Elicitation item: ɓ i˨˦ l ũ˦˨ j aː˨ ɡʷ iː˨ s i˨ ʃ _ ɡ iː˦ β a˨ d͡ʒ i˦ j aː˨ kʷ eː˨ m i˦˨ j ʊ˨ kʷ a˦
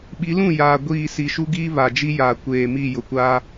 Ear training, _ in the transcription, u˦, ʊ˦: u˦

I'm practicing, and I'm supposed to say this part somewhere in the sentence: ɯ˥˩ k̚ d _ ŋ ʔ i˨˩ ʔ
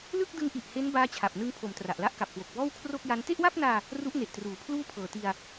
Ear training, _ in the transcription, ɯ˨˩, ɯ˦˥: ɯ˦˥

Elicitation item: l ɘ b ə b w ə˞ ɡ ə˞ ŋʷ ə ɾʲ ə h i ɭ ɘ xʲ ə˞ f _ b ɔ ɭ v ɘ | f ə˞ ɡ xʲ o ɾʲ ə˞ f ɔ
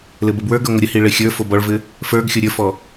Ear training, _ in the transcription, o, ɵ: o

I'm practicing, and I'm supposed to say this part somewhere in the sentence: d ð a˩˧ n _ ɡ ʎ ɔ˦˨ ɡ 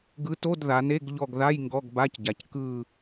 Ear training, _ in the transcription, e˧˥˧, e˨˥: e˧˥˧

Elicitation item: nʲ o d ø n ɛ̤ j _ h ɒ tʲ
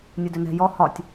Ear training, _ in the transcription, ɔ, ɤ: ɔ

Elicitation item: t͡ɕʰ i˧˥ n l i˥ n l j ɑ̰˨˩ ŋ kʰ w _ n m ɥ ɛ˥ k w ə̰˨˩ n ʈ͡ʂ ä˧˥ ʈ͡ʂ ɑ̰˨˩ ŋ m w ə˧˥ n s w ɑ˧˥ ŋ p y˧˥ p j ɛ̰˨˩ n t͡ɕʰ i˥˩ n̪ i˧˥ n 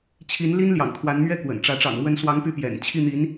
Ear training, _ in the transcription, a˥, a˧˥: a˧˥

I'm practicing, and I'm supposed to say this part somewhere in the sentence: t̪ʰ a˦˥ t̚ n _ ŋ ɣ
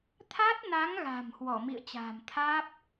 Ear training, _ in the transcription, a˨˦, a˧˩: a˨˦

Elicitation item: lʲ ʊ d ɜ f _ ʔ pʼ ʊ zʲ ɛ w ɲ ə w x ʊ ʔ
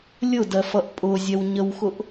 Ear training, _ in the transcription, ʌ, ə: ʌ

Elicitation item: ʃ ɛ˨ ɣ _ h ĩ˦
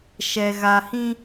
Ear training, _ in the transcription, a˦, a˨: a˨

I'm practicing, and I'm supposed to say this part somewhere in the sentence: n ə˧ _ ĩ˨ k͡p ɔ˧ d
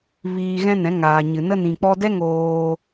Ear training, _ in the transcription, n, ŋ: n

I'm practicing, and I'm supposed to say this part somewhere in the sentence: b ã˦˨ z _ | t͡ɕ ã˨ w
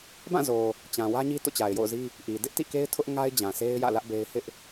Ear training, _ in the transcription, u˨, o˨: o˨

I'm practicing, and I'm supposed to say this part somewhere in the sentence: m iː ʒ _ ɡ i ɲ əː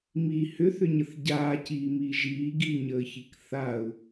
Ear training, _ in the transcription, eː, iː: iː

